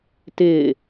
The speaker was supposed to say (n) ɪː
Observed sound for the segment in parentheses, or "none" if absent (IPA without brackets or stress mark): t